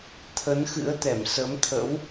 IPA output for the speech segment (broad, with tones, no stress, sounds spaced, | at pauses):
t̪ʰ ə˨˦ n x ɨ̰˧˥ ə̯ t̪ ɛ˧˩ m s ə˨˦ m t̪ʰ ə̰˧˥ w